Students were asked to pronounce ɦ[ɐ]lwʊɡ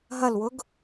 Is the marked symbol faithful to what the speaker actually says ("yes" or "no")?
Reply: yes